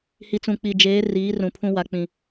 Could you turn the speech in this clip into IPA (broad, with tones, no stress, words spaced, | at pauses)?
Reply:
hi˨t͡sũ˨k͡pi˨d͡ʒeː˨˦ riː˨˦rũ˨pʰũ˦ wa˦k͡pĩ˦